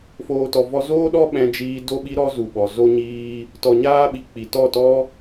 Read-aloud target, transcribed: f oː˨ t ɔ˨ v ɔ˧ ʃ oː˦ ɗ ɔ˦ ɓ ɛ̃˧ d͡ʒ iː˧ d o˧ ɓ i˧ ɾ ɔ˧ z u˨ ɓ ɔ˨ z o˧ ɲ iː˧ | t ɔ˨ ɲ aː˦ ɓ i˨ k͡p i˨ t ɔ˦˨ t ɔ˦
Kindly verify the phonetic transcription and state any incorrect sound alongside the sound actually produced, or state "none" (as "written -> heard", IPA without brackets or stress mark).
ʃ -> z